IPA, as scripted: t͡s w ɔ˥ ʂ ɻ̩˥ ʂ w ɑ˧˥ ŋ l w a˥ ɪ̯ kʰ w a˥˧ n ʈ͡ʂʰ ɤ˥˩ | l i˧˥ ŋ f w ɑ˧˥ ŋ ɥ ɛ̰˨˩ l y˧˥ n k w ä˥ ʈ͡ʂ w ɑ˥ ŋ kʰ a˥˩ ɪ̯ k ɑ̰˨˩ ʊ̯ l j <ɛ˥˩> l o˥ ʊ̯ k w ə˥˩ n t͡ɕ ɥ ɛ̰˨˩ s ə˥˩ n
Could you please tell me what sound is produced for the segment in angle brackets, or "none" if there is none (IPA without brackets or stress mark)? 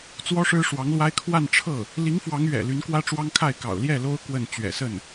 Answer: ɛ˥˩